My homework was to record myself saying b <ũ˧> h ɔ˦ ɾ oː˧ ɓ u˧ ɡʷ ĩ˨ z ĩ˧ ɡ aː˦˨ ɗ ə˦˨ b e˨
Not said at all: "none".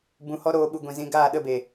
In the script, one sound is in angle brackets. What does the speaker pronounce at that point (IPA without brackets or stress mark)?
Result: ũ˧